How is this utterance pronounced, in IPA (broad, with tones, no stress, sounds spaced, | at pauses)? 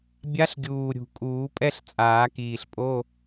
bʲ a˧˥ ɬ ɡʲ uː˨˩ ɾʲ ṳ˨˩ kʼ uː˨˩˦ pʼ ɛ˧˥˧ ɬ t͡sʼ aː˨˩˦ k iː˨˩ ɬ pʼ o˧˥˧